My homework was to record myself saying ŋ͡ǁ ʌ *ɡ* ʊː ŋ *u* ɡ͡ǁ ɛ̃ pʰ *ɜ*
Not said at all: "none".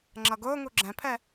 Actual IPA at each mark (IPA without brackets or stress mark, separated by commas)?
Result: ɡ, u, ɛ